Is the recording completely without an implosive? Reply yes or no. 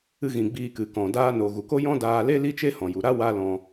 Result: yes